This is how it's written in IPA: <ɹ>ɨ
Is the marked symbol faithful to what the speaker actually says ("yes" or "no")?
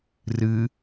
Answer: no